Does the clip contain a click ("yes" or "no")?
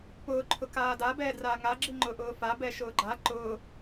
yes